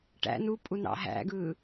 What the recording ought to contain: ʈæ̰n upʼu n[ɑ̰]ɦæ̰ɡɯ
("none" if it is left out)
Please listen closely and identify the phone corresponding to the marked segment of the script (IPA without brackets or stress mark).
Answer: ɑ̰